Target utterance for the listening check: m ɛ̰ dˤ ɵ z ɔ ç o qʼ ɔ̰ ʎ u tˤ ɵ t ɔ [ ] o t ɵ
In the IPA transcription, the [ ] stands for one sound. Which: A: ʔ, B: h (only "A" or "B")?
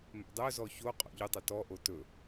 A